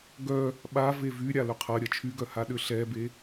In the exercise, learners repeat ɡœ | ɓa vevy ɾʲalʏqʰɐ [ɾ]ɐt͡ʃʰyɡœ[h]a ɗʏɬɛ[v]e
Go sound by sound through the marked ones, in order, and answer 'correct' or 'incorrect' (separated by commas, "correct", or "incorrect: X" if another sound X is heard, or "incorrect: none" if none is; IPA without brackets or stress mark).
incorrect: ɾʲ, correct, incorrect: b